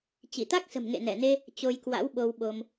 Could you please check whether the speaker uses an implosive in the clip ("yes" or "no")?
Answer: yes